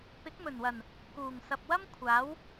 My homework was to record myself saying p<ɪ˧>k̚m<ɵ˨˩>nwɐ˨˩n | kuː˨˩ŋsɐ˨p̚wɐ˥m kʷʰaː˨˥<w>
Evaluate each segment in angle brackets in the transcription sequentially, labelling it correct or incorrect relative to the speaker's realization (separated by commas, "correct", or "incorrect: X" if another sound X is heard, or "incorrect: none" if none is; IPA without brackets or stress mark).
incorrect: ɪ˨˥, correct, correct